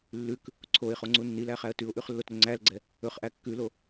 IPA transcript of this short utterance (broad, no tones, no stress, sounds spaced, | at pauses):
lː ʉ k | ǀʰ o ɪ̯ χ o ŋ͡ǀ u nː i l æ χ æ ə̯ t ʉ ʊ̯ ʔ ʉ χ lː o t ɾ ɵ ŋ͡ǀ æ l ɡ͡ǀ ɛ | ɵ χ ʔ æ kː ʉ l o